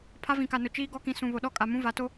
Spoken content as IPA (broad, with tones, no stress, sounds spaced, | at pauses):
pʰ a˦ v ĩ˨ k a˨ n ʊ˨ t͡ʃ iː˦ ɡ ɔ˦ k ĩ˨ s ũ˨ β o˨ ɗ ɔ˦˨ kʼ a˨ m ũ˦ v a˨˦ t o˦